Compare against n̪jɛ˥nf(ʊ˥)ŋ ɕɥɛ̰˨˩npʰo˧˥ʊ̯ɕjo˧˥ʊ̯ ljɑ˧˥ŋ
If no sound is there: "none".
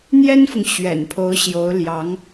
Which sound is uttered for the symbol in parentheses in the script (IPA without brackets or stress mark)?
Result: ʊ˨